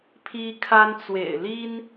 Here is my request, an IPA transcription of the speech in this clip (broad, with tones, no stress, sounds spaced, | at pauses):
pʰ i˦ kʰ a˦ n t͡s w ḛ˨˩ ɪ̯ l i˦ n